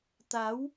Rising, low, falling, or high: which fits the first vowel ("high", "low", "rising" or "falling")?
rising